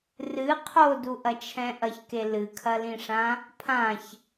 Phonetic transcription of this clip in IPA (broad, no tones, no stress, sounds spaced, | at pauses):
r ɨ qʰ o d u ʔ ɐ t͡ʃʰ ɛ̃ ʔ ɐ ç k e l ɨ kʰ ɐ l ĩ ʂ ã | pʰ ã ç